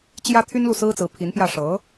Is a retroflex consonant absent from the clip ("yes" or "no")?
no